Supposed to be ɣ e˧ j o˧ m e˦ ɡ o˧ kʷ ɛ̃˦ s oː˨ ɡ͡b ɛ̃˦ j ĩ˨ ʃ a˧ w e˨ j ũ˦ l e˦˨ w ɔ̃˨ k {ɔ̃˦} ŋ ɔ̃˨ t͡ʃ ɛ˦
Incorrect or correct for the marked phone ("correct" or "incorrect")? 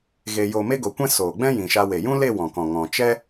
incorrect